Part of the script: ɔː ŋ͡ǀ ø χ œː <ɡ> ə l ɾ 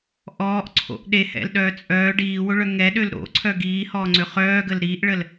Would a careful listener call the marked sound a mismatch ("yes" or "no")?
no